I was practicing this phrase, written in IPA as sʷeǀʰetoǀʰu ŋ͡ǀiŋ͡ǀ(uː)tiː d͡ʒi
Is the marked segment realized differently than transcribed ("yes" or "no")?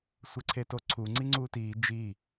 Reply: no